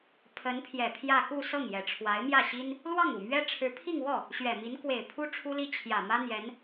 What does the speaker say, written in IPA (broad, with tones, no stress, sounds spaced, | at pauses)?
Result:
pʰ ə˧˥ n pʰ j ɛ˨˩ pʰ j ä˥˧ k u˥˧ s ɤ˥˩ ŋ j ɛ˨˩ ʈ͡ʂʰ w a˧˥ ɪ̯ m j ä˥˩ ɕ i˥ n | l w ɑ˥˩ ŋ u˨˩ m ɥ ɛ˥ ʈ͡ʂʰ ɻ̩˧˥ pʰ i˥˧ ŋ w ɔ˥˩ | ɕ ɥ ɛ˨˩ m i˧˥ n k w e˨˩ ɪ̯ pʰ u˥ ʈ͡ʂʰ u˥ l i˥ t͡ɕʰ j ä˨˩ m ä˥ n̪ j ɛ˧˥ n